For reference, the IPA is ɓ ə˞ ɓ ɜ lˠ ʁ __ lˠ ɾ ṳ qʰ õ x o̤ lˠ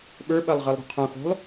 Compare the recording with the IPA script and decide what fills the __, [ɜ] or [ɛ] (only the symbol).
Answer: ɜ